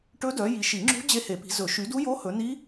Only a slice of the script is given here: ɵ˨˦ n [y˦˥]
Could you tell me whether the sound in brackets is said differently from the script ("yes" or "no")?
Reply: yes